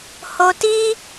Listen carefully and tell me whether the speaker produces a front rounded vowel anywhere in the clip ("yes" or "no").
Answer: no